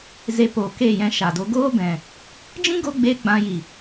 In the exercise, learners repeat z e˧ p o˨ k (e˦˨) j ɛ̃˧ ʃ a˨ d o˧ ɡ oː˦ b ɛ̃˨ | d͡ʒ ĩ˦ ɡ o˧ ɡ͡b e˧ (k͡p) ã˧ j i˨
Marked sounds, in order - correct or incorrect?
correct, incorrect

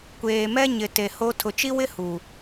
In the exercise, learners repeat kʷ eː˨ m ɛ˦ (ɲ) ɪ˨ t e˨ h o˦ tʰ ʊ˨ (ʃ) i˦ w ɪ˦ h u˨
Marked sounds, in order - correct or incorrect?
correct, incorrect

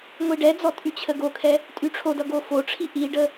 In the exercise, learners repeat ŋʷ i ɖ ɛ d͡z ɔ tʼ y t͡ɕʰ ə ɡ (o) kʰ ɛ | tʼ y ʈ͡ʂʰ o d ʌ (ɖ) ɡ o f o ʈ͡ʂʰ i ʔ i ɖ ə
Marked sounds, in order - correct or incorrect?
correct, incorrect

